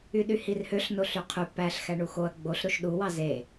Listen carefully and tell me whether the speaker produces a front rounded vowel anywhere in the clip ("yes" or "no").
yes